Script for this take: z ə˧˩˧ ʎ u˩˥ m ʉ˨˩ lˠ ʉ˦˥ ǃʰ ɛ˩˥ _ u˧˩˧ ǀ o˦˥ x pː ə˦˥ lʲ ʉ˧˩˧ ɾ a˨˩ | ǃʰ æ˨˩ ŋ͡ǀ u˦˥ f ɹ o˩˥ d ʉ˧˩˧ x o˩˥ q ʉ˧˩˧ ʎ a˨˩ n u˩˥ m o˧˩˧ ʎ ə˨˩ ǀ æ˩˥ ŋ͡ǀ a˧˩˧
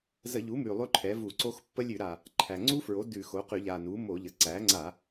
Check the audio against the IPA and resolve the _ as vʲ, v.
v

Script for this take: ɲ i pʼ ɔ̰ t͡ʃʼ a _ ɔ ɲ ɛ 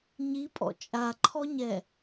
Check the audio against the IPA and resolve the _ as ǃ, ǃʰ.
ǃʰ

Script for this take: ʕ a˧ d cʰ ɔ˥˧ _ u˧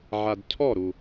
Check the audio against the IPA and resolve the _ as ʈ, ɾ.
ɾ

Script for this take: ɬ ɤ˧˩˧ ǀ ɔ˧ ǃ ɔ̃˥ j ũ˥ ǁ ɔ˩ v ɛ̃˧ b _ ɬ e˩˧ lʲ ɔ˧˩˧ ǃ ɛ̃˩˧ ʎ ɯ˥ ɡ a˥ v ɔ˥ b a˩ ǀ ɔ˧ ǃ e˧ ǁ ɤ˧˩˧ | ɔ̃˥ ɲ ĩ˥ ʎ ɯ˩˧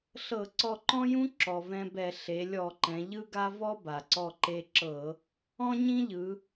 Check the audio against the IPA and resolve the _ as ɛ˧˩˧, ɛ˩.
ɛ˧˩˧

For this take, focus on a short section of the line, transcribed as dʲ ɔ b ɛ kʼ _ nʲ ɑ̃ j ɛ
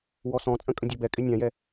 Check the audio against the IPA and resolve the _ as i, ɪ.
ɪ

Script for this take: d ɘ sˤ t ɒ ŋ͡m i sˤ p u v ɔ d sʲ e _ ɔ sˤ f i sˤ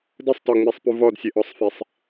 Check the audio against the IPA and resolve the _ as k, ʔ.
ʔ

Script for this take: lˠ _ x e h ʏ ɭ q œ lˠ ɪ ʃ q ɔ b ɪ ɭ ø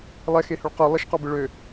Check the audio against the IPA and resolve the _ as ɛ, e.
ɛ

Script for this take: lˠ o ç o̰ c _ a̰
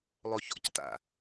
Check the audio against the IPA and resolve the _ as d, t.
t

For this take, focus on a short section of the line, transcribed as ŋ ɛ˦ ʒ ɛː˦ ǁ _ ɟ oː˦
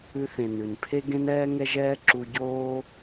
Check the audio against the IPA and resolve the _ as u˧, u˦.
u˧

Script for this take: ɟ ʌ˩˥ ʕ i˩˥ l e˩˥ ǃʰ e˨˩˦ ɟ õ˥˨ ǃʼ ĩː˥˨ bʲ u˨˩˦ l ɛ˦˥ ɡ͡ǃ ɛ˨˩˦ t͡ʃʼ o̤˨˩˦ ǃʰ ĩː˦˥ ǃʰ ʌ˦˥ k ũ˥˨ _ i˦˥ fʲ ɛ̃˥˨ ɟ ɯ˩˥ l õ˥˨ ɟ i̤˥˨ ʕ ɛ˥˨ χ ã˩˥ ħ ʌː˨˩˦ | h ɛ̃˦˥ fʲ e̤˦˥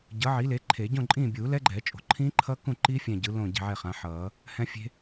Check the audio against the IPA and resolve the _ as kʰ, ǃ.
ǃ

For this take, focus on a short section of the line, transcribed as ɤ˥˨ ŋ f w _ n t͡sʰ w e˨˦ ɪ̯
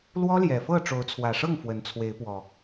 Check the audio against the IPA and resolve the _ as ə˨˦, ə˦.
ə˨˦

